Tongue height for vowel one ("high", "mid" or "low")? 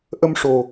mid